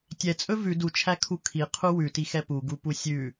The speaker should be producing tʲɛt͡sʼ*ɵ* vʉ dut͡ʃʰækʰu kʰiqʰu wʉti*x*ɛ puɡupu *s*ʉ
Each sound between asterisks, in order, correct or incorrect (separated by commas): correct, correct, incorrect